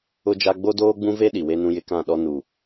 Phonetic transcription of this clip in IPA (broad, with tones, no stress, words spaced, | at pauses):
ʊ˦d͡ʒa˦ ɡ͡bo˦doː˦ɡ͡bũ˦ve˦ ɗi˨we˦nũ˦jɪ˦ kã˦˨ɗɔ˦ nu˨